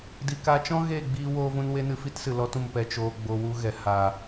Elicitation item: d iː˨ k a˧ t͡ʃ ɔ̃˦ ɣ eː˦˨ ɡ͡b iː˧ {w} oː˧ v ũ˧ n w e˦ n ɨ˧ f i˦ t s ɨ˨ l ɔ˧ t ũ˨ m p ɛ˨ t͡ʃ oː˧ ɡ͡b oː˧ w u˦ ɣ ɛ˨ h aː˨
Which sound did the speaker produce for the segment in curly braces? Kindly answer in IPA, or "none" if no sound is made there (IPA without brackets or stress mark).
w